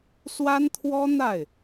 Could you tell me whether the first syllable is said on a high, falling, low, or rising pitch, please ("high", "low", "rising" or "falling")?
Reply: high